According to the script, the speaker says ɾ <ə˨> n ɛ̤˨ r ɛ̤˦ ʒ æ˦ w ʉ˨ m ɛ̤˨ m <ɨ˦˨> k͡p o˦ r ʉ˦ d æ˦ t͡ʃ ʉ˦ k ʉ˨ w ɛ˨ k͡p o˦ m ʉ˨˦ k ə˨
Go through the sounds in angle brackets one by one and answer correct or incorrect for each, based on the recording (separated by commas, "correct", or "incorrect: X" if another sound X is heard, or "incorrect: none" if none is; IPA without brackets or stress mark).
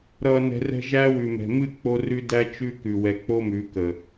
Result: incorrect: ʌ˨, correct